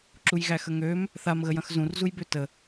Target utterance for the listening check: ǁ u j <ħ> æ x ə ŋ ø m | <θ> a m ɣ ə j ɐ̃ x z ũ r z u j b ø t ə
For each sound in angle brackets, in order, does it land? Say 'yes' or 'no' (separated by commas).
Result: no, yes